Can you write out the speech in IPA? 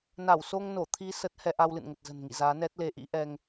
na˧˩wso˧ŋno˧˩ t̪ʰi˧ sə˦˥t̚ hɛ˧ʔa˧wlɨ̰˧˨n ŋə˨˩t̚zə̤˨˩nŋḭ˧˨ zaː˨˦nɛ˦˥t̚le˧ ʔḭ˧˥ʔɛ˧ŋ

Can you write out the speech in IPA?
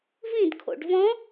vĩdkʰo̰ɖ vɔ̃

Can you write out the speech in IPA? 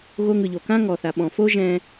ɣo˧ ŋɯ˨ʎo˨kã˦ ŋɔ˨θa˨ ɓɔ̃˨fo˦ ʒɛ̃˧

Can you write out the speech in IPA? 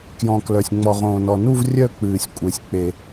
kjɔ̃˩ klœ˩sʲ ŋ͡mɔ˩ʁõː˩nɔ˩nu˦˨v rʲœ˦˨ k͡pɨː˩sʲ kʷʼe˩sʲ k͡pe˩

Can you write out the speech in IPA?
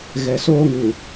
ɣɛ˨soː˦ŋu˨

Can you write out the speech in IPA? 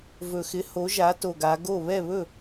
vɵ˨˩xɪ˩˥ho˩˥ ʒa˩˥to˨˩ɡa˩˧ ɡo˥˩ βɛ˥˩βɵ˥˩

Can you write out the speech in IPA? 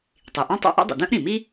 tˤi˩ ʔɔ̃˥tˤɛ̰˥ ʔɛ̰˥dˤḭ˩ dœ̃˥ʔɾĩ˩mi˥

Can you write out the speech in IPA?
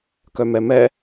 kœmɛmɛ

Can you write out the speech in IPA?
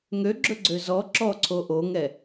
ŋøɡ͡ǁɵɡ͡ǀø zɔ ǁɔǀʰo ʔoŋɛ

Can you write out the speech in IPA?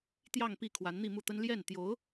t̪jɑ˥˧ŋpi˥˩ kʰwa˧˥nn̪i˥˧mu˥˩t̪ə˥n ljɛ˥˩nt̪jo˧˥ʊ̯

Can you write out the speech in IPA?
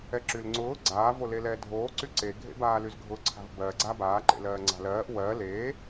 ɛǁylŋ͡ǀʊː ɡ͡ǀaː volelɛːdʱoː ǀyǀe ɡʱḛbaːlyzɡʱʊ ǀʰa̤vbɜ ɡ͡ǀabaː ǃḛlɜːŋ͡ǀa̤lɜːʔ wɜ le

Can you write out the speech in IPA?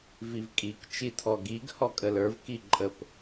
vivkʼik t͡ʃitʰɔɡiɡ hɔkʼələ˞v kiǃʼəp

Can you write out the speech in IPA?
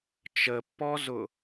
t͡ʃəpːɔzʊ

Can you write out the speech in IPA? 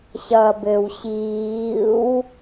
ɕʌ bɘw ɕiːw

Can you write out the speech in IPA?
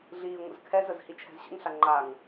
ɮiːŋʷə̰zkʰɛzəz hit͡ʃʰɛ̤zɕə̰ŋɬa ŋ͡ǃaŋ

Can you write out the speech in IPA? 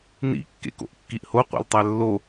nḭ kːḛko̰ʔkːiʔho qʷḛltˤælːo

